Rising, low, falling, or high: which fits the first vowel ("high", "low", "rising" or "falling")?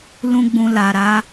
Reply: high